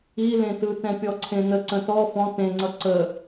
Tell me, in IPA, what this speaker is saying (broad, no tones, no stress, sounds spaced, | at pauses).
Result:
i l ẽ t ɯ t ɛ̃ pʲ ɔ ǀʰ ẽ n ə ǀ ə̃ t ɔ f ɔ̃ t ẽ ŋ͡ǀ ʌ ǀ ə